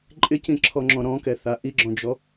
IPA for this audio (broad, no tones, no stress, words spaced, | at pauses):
ǃʼɪcĩǁʰɔŋ͡ǁɔ̃ ɾɔ̃kɛθa ʔiɡ͡ǁɔ̃d͡ʒɔ